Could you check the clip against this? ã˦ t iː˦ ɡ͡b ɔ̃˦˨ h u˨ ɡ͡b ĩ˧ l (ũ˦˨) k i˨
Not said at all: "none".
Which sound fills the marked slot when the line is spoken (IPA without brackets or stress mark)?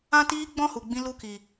u˦˨